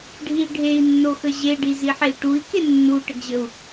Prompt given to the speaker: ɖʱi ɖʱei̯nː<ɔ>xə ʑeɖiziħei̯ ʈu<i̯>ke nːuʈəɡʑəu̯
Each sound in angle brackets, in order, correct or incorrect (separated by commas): incorrect, correct